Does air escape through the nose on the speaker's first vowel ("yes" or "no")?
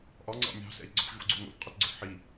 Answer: no